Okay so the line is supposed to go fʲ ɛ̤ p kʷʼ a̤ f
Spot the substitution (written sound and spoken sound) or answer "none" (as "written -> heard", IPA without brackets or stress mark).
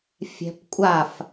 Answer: a̤ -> a